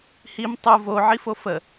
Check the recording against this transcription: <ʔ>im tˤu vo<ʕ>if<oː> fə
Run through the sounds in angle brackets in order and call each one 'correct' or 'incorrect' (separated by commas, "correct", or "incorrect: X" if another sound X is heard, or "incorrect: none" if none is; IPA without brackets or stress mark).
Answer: incorrect: h, correct, incorrect: o